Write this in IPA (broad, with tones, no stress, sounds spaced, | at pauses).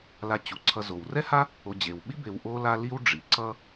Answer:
l a˨ t͡ɕ u˩ ǀʰ ʌ˨ z o˩ w r ɛ˥ h a˥ | o˨ d͡ʑ e˩ w ɓ i˥ b e˨ w ʔ o˦ l a˦ l i˦ w ɖ͡ʐ i˩ ǀ ʌ˦